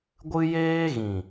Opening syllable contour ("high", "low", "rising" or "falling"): high